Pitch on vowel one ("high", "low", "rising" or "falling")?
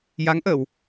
rising